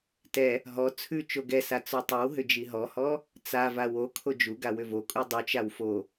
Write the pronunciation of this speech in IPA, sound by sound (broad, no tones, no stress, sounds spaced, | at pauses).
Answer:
t ɛ | ɦ ɔ t͡sʰ ʉ t͡ʃ o ɡ ɛ s a t͡s ɔ tˤ ʉ w ɦ ʏ d͡ʒ i ɦ ɔ h ɔ | t͡s a v a w o kʰ o d͡ʒ u ɡ a w ʏ v o kʼ u dˤ u t͡ʃ a w f o